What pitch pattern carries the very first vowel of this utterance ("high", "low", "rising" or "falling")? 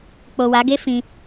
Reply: low